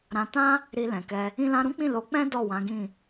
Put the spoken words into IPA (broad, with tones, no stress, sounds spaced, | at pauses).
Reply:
ɾ ã˧ t ã˦ | ɾ i˧ l ɛ̃˨ k ɛ˧ | ĩ˧ l ã˧ ɾ ũ˦ k͡p ĩ˦˨ l o˨˦ k͡p ɛ̃˦ d ɔ˦˨ w ã˨˦ ɡ ĩ˦˨